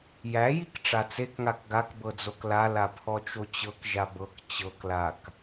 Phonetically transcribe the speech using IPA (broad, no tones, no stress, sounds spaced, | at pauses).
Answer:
j æ j i k ʈ͡ʂ a t͡s e k ŋ a k ɡ a k b ɤ d͡z o k l a l a pʰ ɔ t͡ʃ o t͡ɕ ɤ k ʒ a b ɤ k t͡ɕ ɤ k l a k